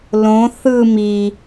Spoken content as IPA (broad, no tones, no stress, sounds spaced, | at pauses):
l õ θ ɯ m i